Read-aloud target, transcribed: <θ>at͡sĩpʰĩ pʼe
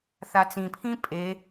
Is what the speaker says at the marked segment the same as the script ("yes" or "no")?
yes